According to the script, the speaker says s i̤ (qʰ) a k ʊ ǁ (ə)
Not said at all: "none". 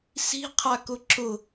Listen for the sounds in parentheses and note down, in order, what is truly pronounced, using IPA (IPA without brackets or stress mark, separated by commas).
qʰ, ʊ